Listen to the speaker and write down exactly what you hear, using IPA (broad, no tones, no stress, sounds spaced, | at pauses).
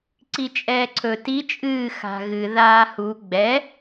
ǀ i t͡ʃʼ ɛː ǀʰ ɵ t i t͡ʃʼ ɨː x a̤ ɣ ɨ ð aː h u ɡ͡b ɛ